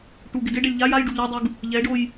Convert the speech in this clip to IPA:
ʈ u ɡ ɪ d ɪ ɖ ɛ lʲ ʎ a j a j ɖ u ʎ o dˤ u ɡ | ʎ ɛ ɖ o j

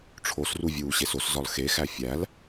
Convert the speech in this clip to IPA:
ʈ͡ʂʰ o s r u vʲ uː ɕ e s o s z ɒ l x e x æ fʲ æ l

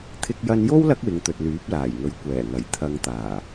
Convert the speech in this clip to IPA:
t̪ʰ ɪ˧ k̚ j ɐ˧ n j o˥ w l ɐ˥ k̚ w ɪ˨˧ ŋ t̪ ɵ˨ t̚ l yː˨˥ p̚ l aː˨˩ j ŋ ɵ˨˥ ɥ kʷ ɛː˨˩ ŋ ɐ˨˩ j t̪ʰ ɐ˧ ŋ t̪ aː˨˩

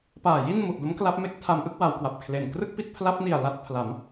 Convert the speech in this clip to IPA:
p aː˨˩ j i˥˩ n m u˨˩ ʔ d o˦˥ m k l a˦˥ p̚ m e˦˥ k̚ tʰ a˧ m ʔ ɯ˥˩ k̚ w a˩˦ w k w a˨˩ p̚ kʰ l e˨˩ n k r ɯ˥˩ k̚ p i˥˩ t̚ pʰ l a˦˥ p̚ n i˨˩ a̯ l a˦˥ t̚ pʰ l a˩˦ m

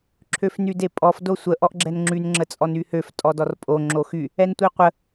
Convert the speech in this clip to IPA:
ǁʰ ø f n y d e pʼ ɔ f d o sʷ ə ʔ ɔ ʔ ɡ͡ǁ ɛ n ŋ͡ǁ y n ŋ͡ǁ ə t͡sʼ ɔ n y h ø f tʼ ɔ d ɔ r pʼ o ŋ͡ǁ o x y | ɛ n tʷ i qʷ ə

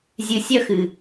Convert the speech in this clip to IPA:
zʲ ɨ˨ sʲ œ˦ x ɨ˨

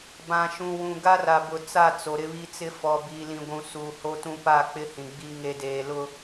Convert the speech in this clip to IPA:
b ã˨ ʃ ũ˨ w ũ˨ ɡ a˦ r a˨ b ʊ˨ t͡s a˦˨ t͡s o˨ ɾ ɪ˦ β i˦ t͡s ɪ˦ f ɔ˨ b i˨ l ĩ˨ ɡʷ ũ˨ s uː˨ h o˦ t ũ˦ p a˦˨ k͡p ɪ˦ h ĩ˨ ɡ͡b i˦ ŋ e˨ d eː˨ l ʊ˦

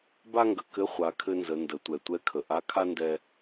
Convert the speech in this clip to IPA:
b a˥ ŋ ɡ ə˩ k ɘ˧˥ χʷ a˩˧ kʰ ɘ˧ n z ə˩˧ n d ə˩˧ tʷ ɛ˩ tʷ ɛ˥ kʰ ə˩ ʔ a˧˥ kʰ a˥ n d ɛ˧

